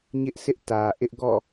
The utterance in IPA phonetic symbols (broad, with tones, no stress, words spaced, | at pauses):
ɲɪ˦ʔsʰɪ˦ʔtä˨ ʔɪ˦ʔɡɔ̰˦˨